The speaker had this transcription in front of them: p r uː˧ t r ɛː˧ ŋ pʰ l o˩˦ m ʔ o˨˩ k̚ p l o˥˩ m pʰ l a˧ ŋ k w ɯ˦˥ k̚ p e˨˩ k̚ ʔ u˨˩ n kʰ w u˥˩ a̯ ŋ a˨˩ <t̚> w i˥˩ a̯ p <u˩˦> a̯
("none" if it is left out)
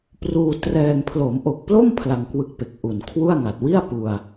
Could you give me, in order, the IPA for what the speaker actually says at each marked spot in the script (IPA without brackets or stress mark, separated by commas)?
t̚, u˧